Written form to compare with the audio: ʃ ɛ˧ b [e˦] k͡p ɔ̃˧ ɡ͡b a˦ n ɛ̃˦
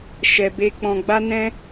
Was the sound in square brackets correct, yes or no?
yes